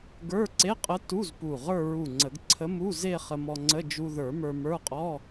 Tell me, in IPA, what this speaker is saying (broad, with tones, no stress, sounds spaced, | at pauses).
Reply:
ɡ ə˞˧˥˧ ǀ e˧˥˧ qʼ ə˧˥ t u˧˥˧ z p u˧˩ ʁ ə˞˥˧ ɹ u˧˩ ŋ͡ǀ ə˨˩˦ ɡ ǀʰ ə˧˥ m u˧˥˧ z e˥˧ χ ə˧ m ɔ˧ ŋ͡ǀ ə˧˥˧ d͡ʒ u˧ ð ə˞˨˩˦ m ə˞˧ m ə˞˧˥˧ qʼ ɔ˧˥˧